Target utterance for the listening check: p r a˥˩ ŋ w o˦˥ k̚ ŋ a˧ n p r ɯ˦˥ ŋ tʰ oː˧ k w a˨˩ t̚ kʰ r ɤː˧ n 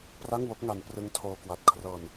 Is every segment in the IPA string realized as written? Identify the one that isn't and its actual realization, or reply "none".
none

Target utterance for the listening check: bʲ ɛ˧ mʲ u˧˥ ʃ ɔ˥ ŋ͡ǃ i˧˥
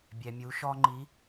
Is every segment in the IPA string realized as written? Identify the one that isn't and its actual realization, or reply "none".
none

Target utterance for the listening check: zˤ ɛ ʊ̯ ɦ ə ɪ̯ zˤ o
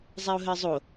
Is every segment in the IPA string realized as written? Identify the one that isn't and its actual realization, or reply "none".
none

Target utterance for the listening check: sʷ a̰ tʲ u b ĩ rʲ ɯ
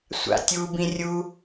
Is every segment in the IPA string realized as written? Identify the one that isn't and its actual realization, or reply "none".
ɯ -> u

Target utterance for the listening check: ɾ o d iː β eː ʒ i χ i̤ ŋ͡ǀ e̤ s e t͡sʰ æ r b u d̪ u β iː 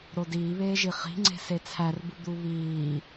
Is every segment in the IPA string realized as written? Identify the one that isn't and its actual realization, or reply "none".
none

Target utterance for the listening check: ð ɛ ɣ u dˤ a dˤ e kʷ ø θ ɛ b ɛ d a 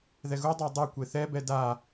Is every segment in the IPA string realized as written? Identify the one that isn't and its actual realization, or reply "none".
ø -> e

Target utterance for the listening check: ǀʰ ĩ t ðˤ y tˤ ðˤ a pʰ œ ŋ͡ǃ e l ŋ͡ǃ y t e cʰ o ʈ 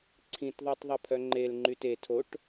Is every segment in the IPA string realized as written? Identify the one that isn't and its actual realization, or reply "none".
cʰ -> tʰ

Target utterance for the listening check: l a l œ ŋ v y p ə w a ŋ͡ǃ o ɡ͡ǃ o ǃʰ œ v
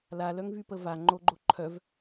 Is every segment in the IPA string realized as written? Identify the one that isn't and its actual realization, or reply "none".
w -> v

